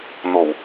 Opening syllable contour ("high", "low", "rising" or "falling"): low